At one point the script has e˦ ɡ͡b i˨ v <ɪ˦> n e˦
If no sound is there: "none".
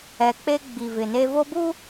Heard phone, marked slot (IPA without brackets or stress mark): ɪ˨